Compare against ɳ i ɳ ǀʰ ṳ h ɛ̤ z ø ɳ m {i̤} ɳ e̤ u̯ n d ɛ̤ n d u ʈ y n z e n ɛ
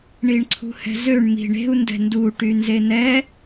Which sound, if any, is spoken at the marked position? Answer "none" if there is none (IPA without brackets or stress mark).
i̤